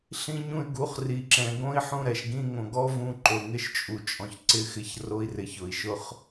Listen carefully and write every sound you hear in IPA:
ɬ ĩ˦ ɲ ũ˦ y̯ ɡ u˨˦ χ r i˨ ǁ ɛ̃˨ ɡ õ˦ i̯ ħ ũ˦˨ ɾ ɛ˨ ʃ ɡ ĩ˧ ŋ õ˨ ɡ ɔ˦ v ũ˧ ǃ o˨ ŋ ɪ˧ ʃ t͡ʃʼ u˨ t͡ʃʼ ɔ̃˨ ç ǀ ɪ˧ x ɪ˧ ç r o˦ i̯ r ɪ˨ ç ʊ˨ i̯ ʃ ʊ˦ χ

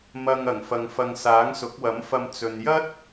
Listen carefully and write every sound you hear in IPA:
m ɐ˨ ŋ ɐ˨˩ ŋ f ɐ˨ ŋ f ɐ˨ ŋ s aː˨˥ ŋ s ʊ˨˥ k̚ w ɐ˨˥ m f ɐ˧ m t͡s ɵ˨ n j ɐ˥ t̚

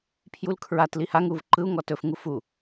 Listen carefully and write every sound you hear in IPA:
pʰ j u l kʰ ɹ a t l i h a ŋ u v ǃ ɯ u̯ ŋ ɔ t ɵ f ŋ u f u

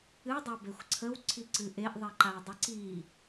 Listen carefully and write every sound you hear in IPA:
ɨ dˤ ə b e xʷ ǀʰ ə w ǀʰ i ǀ ɨ ʔ e ʔ ðˤ i ǃ a w dˤ ə ǀ i

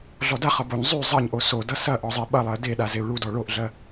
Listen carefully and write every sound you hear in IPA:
ɮ ɔ d a χ ʌ b o ɲ zˤ y zˤ ɐ ɲ ʔ o s o d ʌ s ɐ ʔ ɔ zˤ ɛ ɓ ɐ lˠ ɜ d e ɗ a z e u̯ ɭ u d ɔ ɭ o ʔ ɮ ɜ

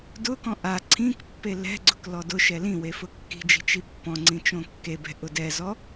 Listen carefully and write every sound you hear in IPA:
d ʊ k ɔ̃ ʔ a ǀʰ ĩ k pː e l ɛ̤ ɡ͡ǀ ʊ k l ɔ d ʊ ʃ ɛ l ĩ w e f ʊ kː i̤ d͡ʒ i̤ t͡ʃ i pː ɔ̃ ŋ͡ǀ ĩ t͡ʃ õ kː e b ɛ̤ ʔ ʊ d ɛ z ɔ

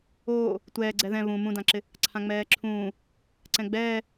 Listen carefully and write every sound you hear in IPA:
oː | tʷ ɛː ɡ͡ǀ ɛ ð ɛ̃ β ũ m ũ d ã ǁ ɪ | ǀʰ ã ŋ͡m ɛː ǁʰ ũː | ǀ ɛ̃ ɡ͡b ɛː

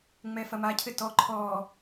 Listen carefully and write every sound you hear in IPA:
ŋ͡m ɛ f ɐ m a cʰ ɘ t ɔ ǃʰ ɔ

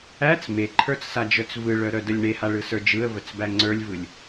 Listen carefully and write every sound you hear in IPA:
æ t͡s m e ǃʰ ə˞ t͡s s a d͡ʒ œ t͡s v ɯ ɭ œ ɾ œ d ə lʲ ɳ e h a ɭ ɯ s ə˞ d͡ʒ ɯ ə̯ v ə t͡s b æ ŋ͡ǀ ə˞ lʲ v ɯ lʲ

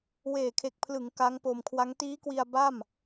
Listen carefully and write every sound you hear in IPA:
w eː˨˩ kʰ e˨˩ k̚ pʰ l ɯ˩˦ ŋ k a˦˥ ŋ p o˧ m kʰ w a˦˥ ŋ t iː˦˥ k w i˧ a̯ b a˥˩ m

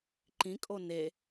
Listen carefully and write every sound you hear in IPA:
ǃ ĩ kʼ o n e

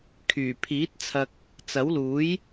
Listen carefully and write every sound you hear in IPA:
kʰ yː˨˩ pʰ iː˨˥ t̚ t͡sʰ ɐ˥ k̚ | t͡s ɐ˨˥ w l uː˨˥ j

